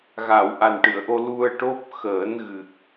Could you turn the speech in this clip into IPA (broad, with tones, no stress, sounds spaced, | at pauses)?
ɣ a˨˩˨ w ʔ a˨˩ n ʈ ɨ˨˩˨ ə̯ ʔ o˧ l u˧ ə̯ ʈ o˦˥ p̚ x əː˨˩˦ n ɣ ɨ˨˩ k̚